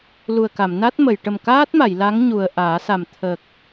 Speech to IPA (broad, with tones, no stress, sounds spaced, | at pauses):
l u˨˩ ə̯ k a˨˩˨ m n a˦˥ t̚ m ə˨˩˨ j ʈ ə˨˩ m k aː˦˥ t̚ m a˨˩˨ j l a˧˥ ŋ ɲ u˨˩ ə̯ ʔ aː˨˩˦ s a˨˩ m t̪ʰ ə˨˩ k̚